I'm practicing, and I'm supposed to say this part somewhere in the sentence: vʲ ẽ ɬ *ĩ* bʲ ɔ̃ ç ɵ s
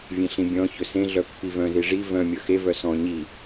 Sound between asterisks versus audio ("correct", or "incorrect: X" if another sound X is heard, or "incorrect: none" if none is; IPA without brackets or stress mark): correct